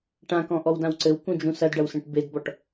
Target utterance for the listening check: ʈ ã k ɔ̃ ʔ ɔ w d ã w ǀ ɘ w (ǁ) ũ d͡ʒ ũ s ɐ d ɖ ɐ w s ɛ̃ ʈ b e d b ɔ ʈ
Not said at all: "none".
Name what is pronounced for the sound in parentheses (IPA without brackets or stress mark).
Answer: k